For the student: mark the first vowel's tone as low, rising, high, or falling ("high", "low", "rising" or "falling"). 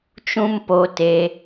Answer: high